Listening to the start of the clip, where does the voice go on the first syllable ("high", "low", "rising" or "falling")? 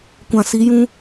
low